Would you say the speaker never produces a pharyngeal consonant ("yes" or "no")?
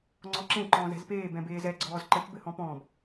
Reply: yes